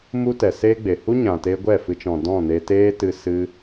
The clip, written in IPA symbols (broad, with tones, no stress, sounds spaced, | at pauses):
m u˦ t ɛ˨ s eː˦ ɡ͡b e˨ h u˦ ɲ ã˨ t eː˧ ɡʷ ɛ˦˨ f ɨ˧ t͡ʃ ɔ̃˨ d ɔ̃˦˨ n e˧ t eː˦ t ɨ˧ s ɨ˧